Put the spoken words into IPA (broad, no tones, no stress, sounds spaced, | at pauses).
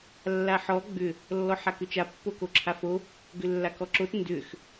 lː a ħ ɔ ɡ͡b ʏ | lː ɔ ħ a k ʏ t͡ʃ a pː o k o ǁʰ a f o | ɡ ʏ lː a k ɔ ǁ o t n d ʏ x